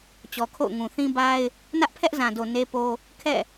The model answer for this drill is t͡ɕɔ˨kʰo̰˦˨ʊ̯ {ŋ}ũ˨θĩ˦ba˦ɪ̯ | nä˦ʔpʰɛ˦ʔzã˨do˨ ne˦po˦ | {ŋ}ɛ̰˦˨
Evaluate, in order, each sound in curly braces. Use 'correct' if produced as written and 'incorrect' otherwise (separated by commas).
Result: correct, incorrect